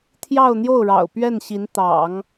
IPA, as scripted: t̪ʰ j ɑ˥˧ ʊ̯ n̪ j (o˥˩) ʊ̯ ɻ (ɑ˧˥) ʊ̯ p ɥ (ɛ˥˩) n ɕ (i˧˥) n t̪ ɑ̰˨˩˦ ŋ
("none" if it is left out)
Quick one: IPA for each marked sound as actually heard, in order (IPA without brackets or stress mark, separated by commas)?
o˥˩, ɑ̰˨˩, ɛ˥˩, i˧˥